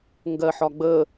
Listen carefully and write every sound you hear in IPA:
ŋɡɜħɒɡ͡bə

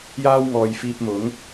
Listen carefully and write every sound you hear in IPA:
jaː˥wŋɔː˨jfiː˧p̚ mʊ˨˥ŋ

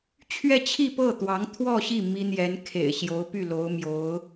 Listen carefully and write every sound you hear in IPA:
t͡ɕʰɥɛ˥˧t͡ɕʰi˥˧ pɤ˥˩t̪wɑ˧˥ŋt̪ʰwɔ˥˧ɕi˥˩ mi˥n̪jɛ˧˥n kʰḛ˨˩ɪ̯ɕjo˧˥ʊ̯ py˥˩lo˧˥ʊ̯mjo˧˥ʊ̯

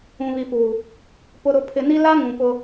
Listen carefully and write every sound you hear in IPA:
ũ˨βi˨puː˨ | pʊ˨ɾʊ˨pʰɪ˨ni˦ la˦ ŋũ˨ pʊ˦

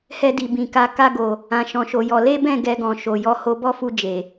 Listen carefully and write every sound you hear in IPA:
hɛ˧di˨ bĩ˨ka˧ ka˧ɡo˨ | ã˨ ʃɔ̃˨˦ʃo˧jɔ˧ le˦bɛ̃˦˨ ɡɛ˧ɡɔ̃˨ ʃo˨jɔ˧ ho˧bɔ˦fu˧ d͡ʒe˨

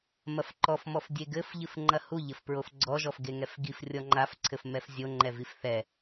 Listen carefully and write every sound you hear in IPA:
mɐfǃɔfmɔf dʲeɡɘf ʎɨfŋ͡ǃɐhu ʎɘfpɹofɡ͡ǀɔʒɔf ɡeŋɛfɡifrʲɔ ŋ͡ǃafǀʰɘf mɛfzʲoŋ͡ǃɛvif θɛ

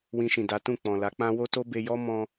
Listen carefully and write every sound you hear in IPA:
wĩ˧ʃĩ˨ da˨˦tũ˦˨k͡pɔ̃˨ la˨˦k͡pã˦ wo˦to˦be˧jɔ˦ mɔ̃˧

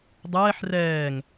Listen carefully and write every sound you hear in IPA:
dˤɛːħ rɛːŋ

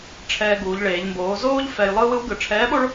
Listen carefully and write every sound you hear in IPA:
ʈ͡ʂʰɛː˧ɡuː˩˧ʎɭeː˩˧ʎ mboː˩˧zoː˥ʎ fɛ˧jlˠɯː˥w ɯ˧˥wɡɯ˩˧ ʈ͡ʂʰɛː˧˥ɓo˥ɭ

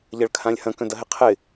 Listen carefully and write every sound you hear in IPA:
ʎɐɭkʰãlʲhɐ̃ kœ̃dɐɦɪqʰɪ

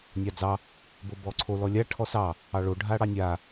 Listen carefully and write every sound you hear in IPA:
nʲɑd͡zɑ | bobɔǀʰo lɔlʲa ʈʰɔsɑ | ɑɭo ɖʱaɽɑnʲa

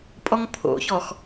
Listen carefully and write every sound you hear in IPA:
pʼɔŋpʰo̰çɔx

